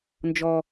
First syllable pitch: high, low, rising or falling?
high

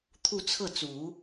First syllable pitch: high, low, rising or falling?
falling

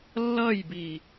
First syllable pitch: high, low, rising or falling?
falling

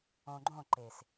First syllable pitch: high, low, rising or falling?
low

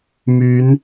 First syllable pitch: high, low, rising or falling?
rising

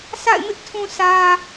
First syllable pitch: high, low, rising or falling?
falling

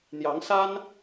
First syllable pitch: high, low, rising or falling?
rising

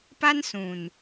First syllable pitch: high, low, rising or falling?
high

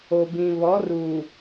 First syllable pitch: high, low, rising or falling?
low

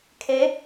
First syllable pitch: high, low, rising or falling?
rising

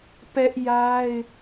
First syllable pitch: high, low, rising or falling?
high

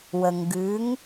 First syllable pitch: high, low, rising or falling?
low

